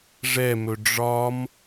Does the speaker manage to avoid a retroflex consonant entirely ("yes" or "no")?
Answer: no